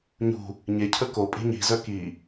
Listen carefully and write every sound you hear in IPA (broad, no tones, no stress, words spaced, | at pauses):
ɲṳ | ɲecʰə ko pʼi̤ɲi̤zœ ki